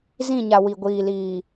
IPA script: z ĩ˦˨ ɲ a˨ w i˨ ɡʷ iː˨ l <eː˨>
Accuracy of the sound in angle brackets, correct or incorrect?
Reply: incorrect